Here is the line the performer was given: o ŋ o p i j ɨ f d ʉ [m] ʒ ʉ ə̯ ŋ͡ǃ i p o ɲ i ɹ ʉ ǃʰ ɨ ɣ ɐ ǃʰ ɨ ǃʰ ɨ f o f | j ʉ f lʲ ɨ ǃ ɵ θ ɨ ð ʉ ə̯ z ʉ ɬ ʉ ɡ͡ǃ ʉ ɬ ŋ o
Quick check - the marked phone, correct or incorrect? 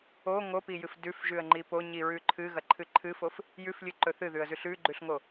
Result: incorrect